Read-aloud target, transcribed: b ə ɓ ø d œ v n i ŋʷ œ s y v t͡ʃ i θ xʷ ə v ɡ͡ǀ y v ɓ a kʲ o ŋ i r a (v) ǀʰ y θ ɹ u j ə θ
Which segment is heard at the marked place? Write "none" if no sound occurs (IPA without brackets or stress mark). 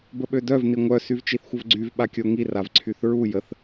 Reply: v